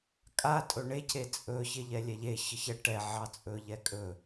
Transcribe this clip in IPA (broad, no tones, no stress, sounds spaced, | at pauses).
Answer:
kʼ a tʼ ɵ ɳ e c e t͡sʼ ɵ ç e ʎ ɛ lʲ ɛ ʎ e ç ə ç ɛ ʈ ɛ ʕ ɑ t͡sʼ ɵ ʎ ɛ kʼ ɵ